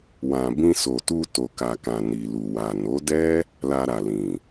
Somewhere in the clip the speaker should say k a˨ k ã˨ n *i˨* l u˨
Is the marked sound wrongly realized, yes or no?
no